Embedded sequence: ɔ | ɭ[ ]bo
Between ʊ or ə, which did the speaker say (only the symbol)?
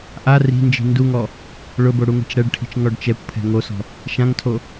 ʊ